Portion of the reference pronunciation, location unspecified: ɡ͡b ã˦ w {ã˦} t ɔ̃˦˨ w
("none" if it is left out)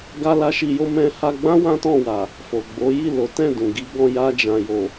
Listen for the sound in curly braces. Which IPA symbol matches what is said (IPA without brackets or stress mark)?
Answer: ã˦